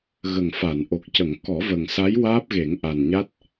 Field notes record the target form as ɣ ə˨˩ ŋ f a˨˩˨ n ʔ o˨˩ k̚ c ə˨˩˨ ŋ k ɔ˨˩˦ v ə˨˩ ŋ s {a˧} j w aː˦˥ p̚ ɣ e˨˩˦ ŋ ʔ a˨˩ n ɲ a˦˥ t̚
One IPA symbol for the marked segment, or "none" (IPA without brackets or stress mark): a˧˥